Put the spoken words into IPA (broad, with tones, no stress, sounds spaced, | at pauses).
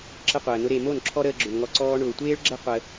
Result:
ǁ ə˦ qʷ əː˨ n ʊ˦ ɾ e˨ m o˦˨ n ǁʰ ɔ˦ ɾ əː˧ ɡ͡ǁ ʊ˨ n ŋ ɔ˧ ǀ ɔː˧ ɳ ʊː˨ tʷ eː˦ ɭ ɡ͡ǁ ə˦ qʷ ə˧